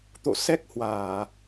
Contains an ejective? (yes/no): no